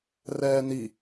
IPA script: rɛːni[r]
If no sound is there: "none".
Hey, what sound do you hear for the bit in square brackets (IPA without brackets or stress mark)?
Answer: none